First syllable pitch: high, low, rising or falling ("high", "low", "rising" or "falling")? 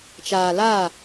low